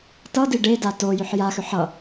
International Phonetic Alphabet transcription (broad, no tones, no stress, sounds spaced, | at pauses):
t ʌ d i ɖ e d a t o j ʏ ħ j a x ʏ ħ ʌ